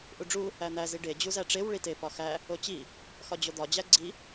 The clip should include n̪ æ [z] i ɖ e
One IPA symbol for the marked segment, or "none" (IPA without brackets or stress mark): z